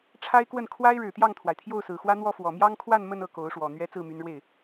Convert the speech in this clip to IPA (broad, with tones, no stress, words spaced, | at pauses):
ʈ͡ʂʰa˥ɪ̯kwə˥˩n kʰwa˥ɪ̯ɻɻ̩˨˩t̪jɑ˥˩ŋt̪ʰwa˩ɪ̯ t̪ʰjo˥˩ʊ̯sɹ̩˨˩xwä˥n̪wɔ˥˩ fwɔ˨˩mjɑ˥ŋkʰwa˥˧n mə˥˧nɤ˥˩ ko˧˥ʊ̯ʂwɔ˨˩ n̪ɥɛ˧˥ t͡sɹ̩˥˩my˧˥nɻwe˥˩ɪ̯